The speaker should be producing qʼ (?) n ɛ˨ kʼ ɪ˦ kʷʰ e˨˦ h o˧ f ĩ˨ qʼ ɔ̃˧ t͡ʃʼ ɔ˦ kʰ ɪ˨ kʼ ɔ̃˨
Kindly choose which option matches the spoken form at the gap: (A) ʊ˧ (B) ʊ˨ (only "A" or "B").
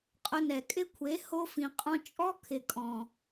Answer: A